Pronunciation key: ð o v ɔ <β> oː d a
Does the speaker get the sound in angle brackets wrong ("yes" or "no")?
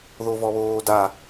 no